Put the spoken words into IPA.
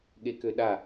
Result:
ɠekøɗa

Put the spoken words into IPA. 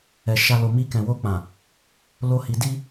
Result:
ɛ˨ ʃa˧ lo˨mi˧ kɛ̃˨wo˧k͡pã˨ | lo˦hi˧ di˦

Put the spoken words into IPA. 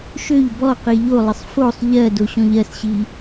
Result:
ʃøʎ bɔqi ʎolˠəsˤ fosˤ ʎɜ doɕɔ̃ʎɜsɕi

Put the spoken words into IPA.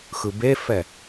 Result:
xɯbefɛ

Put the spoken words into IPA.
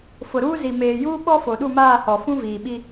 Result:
fʊ˨ɾuː˦ zi˨ meː˨juː˦ ɓɔ˦fo˨ɗu˦˨maː˦˨ hɔ˨ fũ˦viː˨ɓi˦

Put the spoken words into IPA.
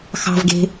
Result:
xɑ̤vɡe̤

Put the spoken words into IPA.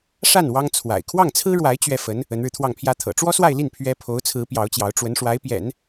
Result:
ʂa˥˩n wɑ˥ŋ t͡sʰwa̰˨˩ɪ̯ kʰwɑ˥˩ŋt͡sʰɹ̩˥ɻwa˧˥ɪ̯ t͡ɕɥɛ˥˩fə˧˥n | ə˧˥nɻɻ̩˧t̪ʰwɑ˥˩ŋpʰjä˥ t̪ʰɤ̰˨˩ʈ͡ʂwɔ˥swa˥˧ɪ̯li˥˩n pʰɥɛ˥ pʰo˧˥ʊ̯t͡sʰɹ̩˧˥ pjɑ˧˥ʊ̯t͡ɕjɑ˧˥ʊ̯ ʈ͡ʂwə˧˥nʂwa˧˥ɪ̯pjɛ̰˨˩˦n

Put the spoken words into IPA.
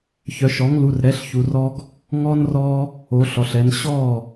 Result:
çœ˩˧ʃɔ˩˥ŋlu˩˧˩rɾɛ˩˥ɬ çu˩˧rɔ˦ɡ | ŋɔ˦nrɔ˦ | o˩˧ɬɔ˩ɬɛ˩˧n ɕɔ˥˩

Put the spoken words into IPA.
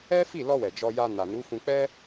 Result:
ɛ˦fi˦˨lɔ˧wɛ˨ d͡ʒɔ˧ja˧ na˨nu˨˦fũ˧ k͡pɛ˦

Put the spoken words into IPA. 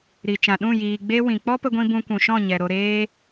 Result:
ɾi˨t͡ʃã˨ ɗũ˦˨jiː˨ ɡ͡be˦wĩ˨ k͡pɔ˦pə˧ɡʷĩ˧ bũ˧kʷũ˨ʃɔ̃˦˨ ɲɛ˨ɾo˧ ɾeː˧

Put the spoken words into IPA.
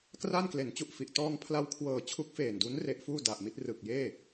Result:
kra˥˩n kle˩˦nt͡ɕu˨˩ʔfi˨˩ʔ tɔː˧ŋpʰla˧wkʰwɤː˨˩ t͡ɕʰu˦˥k̚feː˨˩ndu˦˥n re˦˥ʔfuː˥˩ da˨˩ʔ mi˥˩t̚rɯ˨˩k̚jeː˥˩

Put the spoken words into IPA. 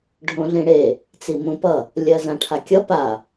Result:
ɖʱõɮĩɽe | t͡simũpʌ | lʲɜzãʈʰakʲʌ pa

